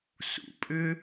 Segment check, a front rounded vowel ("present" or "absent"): present